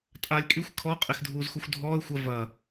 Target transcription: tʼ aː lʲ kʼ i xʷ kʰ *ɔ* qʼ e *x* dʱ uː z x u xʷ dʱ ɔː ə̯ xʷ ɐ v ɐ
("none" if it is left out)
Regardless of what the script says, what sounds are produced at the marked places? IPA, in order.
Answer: ɔ, x

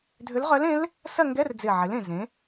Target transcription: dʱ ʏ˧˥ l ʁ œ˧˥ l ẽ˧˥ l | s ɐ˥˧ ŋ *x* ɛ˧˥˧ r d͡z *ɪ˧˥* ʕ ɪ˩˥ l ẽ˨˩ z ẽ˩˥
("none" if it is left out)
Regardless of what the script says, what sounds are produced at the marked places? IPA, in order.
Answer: ɡ, ɪ˨˩

